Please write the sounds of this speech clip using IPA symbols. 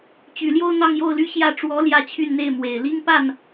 t͡ɕy˨˩ljo˥˧ʊ̯ n̪ɑ˥˧ŋjo˥˧ʊ̯ly˥˧ ɕjä˥˩ ʈ͡ʂwɔ˧˥ ljä˥˧t͡ɕʰy˥˧nn̪e˥˩ɪ̯ mwe˨˩ɪ̯li˥ŋ pa˥˩n

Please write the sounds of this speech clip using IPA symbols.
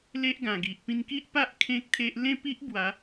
le˦ʔɡã˨˩ɡi˨ʔ pĩ˧nki˦ʔpa˦ʔ kʰẽ˦k̚t̪ʰe˦ʔ lẽ˥˧pi˦ʔ bwa˨˦

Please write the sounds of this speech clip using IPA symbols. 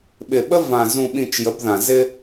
ɓɪ˨ɓə˦ vã˨ zũ˨ɓĩ˨t͡ʃ jə˨˦bðã˨ zɪ˦

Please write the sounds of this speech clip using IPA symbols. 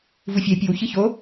vufʲɛ pʲɨw çɨço

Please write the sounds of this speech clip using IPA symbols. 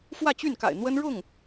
fwä˥˧t͡ɕy˥˩nka̰˨˩ɪ̯ n̪wə˥nɻʊ˥˩ŋ

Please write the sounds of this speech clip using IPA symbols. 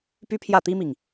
py˥pʰjä˥˩t̪i˥mi˨ŋ

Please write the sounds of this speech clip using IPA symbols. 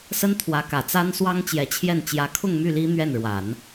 sə˥nt̪ʰwä˧˥kä˨˩t͡sa˥n swɑ˥ŋt͡ɕjɛ˧˥t͡ɕʰjɛ˥˩n t͡ɕjä˧˥kʰʊ˥˧ŋmy˥˩ li˥n̪ɥɛ˥˩nɻwa˨˩˦n

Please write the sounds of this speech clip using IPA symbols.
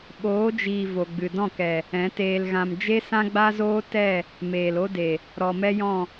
ɓoː˨˦d͡ʒiː˨ vo˨ɡ͡bɨ˨ dɔ̃˦˨kɛ˨ | ɛ̃˨˦teː˧lɣã˧m d͡ʒe˦sã˦ɡ͡ba˦zoː˦ tɛ˦˨ | meː˨lo˦de˨ | ɾɔ˨mɛ˦jɔ̃˦˨

